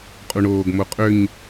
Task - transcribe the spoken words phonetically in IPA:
qʼ u ɳ oː ɡ m o qʼ ø ɲ

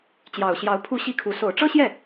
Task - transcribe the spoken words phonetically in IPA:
t͡ɕ j ɑ˨˩ ʊ̯ ɕ j ɑ˧˥ ʊ̯ pʰ u˥˧ ɕ i˥˩ kʰ u˧˥ s o˨˩ ʊ̯ ʈ͡ʂ ɤ˥ ɕ j ɛ˥˩

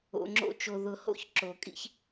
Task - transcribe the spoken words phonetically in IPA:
o̰˧ ŋ͡ǁ o̰˦ t͡ʃ o˧ ð ʊ˧ h o̰˦ ç ǁ o˨ kʼ ḭ˦ ç

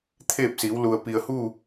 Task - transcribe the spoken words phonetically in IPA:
t̪ʰ eː˥˨ p̚ s iː˩˧ w l u˩ ə̯ p i˩ ə̯ h uː˥˨

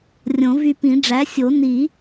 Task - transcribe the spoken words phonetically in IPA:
rʲ õ˨˩˦ v y˧ p ĩ˨˩˦ ɖ͡ʐ æ˩˥ sʲ o˨˩˦ n i˨˩˦

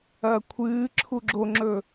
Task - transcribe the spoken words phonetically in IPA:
ɐː kʷʰ ɨː ǁʰ u ɡ͡ǁ o ŋ͡ǁ ɵ

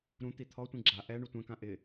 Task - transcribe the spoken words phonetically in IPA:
ɾ ũ t̪ i t̪ʰ ɔ tʷ ĩ ɡ͡ǁ a ʔ ɛ ɳ u tʷ ɛ̃ k ã ʔ ɪ

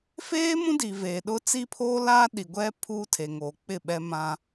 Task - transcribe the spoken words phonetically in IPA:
f eː˦ m ũ˦ d i˨ v eː˨ ɗ ʊ˦ t͡s i˦ pʰ oː˦ l aː˦ ɗ i˨ ɡʷ ɛ˦ pʰ uː˦ tʰ e˨ ŋ oː˨ k͡p ɪ˦˨ ɓ ɛ˦ m ã˦

